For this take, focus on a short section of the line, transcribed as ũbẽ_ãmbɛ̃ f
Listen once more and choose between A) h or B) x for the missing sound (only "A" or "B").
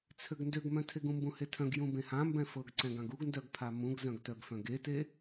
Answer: A